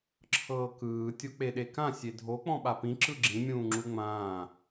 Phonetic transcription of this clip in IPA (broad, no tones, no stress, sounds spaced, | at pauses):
ǁʰ ɤː k ɯː tʲ o k͡p e ɗ e k ã sʲ e dʱ o k͡p ɔ̃ ɓ a p ĩ ǁ ɯ ɡ͡ǁ ĩ mʲ ũː ŋ͡ǁ u ŋ͡m ãː